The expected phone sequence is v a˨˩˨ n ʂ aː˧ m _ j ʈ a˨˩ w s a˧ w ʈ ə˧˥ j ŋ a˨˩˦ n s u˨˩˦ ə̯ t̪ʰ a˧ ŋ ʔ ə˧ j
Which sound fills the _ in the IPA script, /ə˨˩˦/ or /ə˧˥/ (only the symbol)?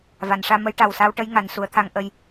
ə˧˥